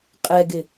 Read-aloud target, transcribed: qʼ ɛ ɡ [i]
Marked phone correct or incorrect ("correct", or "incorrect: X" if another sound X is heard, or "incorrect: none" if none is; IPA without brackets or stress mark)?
incorrect: ɪ